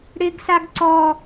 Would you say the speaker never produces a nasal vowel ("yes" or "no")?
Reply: yes